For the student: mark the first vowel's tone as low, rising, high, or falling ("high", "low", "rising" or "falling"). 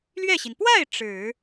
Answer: falling